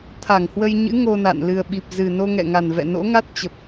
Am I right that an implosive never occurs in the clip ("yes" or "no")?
no